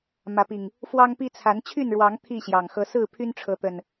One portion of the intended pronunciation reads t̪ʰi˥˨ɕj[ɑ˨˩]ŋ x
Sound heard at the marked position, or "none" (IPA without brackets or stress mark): ɑ˨˩